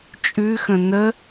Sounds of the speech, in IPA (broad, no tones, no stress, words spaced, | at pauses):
t͡ʃʼʉxə̃ n̪ə